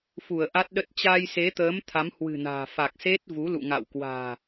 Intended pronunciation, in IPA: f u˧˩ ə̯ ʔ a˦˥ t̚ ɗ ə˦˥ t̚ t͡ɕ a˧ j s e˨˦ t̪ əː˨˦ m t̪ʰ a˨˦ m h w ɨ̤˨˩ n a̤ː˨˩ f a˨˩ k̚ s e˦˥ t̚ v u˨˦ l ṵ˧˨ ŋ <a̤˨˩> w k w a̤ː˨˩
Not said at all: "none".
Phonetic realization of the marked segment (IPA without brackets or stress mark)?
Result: a̰˧˨